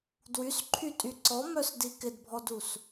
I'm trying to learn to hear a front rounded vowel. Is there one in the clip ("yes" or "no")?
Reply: yes